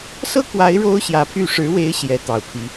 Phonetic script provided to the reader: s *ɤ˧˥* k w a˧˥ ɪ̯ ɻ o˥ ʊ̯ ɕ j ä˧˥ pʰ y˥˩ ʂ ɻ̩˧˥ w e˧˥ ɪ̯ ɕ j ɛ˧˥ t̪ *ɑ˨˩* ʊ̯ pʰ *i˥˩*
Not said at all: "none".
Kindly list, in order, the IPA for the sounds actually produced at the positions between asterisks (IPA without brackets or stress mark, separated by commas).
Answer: ɤ˥, ɑ˨˩, i˧˥